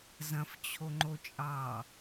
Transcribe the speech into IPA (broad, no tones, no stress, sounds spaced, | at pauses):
z ɐ̃ f t͡ɕʰ o ŋ͡ǃ o t͡ʃʼ ɑ